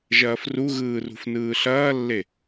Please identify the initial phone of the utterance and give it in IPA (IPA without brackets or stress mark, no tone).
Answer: ʒ